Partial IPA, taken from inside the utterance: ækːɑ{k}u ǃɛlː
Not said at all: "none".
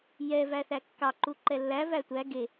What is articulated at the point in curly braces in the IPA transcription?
ǃ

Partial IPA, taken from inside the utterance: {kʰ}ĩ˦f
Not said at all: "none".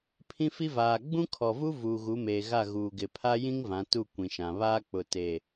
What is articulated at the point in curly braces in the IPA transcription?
pʰ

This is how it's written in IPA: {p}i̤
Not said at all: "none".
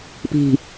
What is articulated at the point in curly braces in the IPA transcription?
p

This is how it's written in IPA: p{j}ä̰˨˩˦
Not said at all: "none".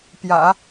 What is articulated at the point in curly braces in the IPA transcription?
j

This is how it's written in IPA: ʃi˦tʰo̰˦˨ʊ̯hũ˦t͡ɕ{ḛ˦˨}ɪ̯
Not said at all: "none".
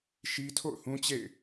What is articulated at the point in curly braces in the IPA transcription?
ḛ˦˨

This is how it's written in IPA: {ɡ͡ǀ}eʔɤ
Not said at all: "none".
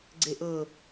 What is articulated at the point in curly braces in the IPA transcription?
ɡ͡ǀ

